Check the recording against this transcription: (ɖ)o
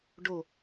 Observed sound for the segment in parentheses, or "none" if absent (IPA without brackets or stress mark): ɖ